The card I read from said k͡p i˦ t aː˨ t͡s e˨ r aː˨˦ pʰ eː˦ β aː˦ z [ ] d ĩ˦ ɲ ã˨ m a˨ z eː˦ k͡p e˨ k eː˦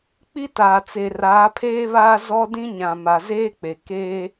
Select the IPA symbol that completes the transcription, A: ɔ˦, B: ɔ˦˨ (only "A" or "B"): A